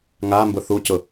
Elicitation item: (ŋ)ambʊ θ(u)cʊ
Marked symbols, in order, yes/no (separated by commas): yes, yes